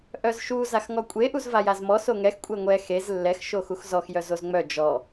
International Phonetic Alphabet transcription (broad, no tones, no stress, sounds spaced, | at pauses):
ʔ œ z ʃ u z a x ŋ ɔ kʷʼ e ʔ u z v a j a z m ɔ s o ŋ ɛ x kʷʼ ɛ ŋʷ ɛ x e z lː ɛ x ʃ o x u x z ɔ x j œ z o z ŋ͡m œ d͡ʒ ɔ